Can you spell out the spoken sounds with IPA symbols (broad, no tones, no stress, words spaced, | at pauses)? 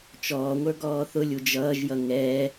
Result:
t͡ʃɔːŋʷə˞ ɡɔːθʊlʲu d͡ʒʌːʒjʌ ŋɛ